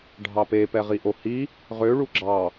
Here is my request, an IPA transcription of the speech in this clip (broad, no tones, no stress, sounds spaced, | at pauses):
ɖʱ ɑ p e p ɛ ʁ i ʔ o h i | ʁ ø ɭ u ɡ͡ǁ ɑ